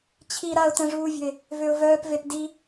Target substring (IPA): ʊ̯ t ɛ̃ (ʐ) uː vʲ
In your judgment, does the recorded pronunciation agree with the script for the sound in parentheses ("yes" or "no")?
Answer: yes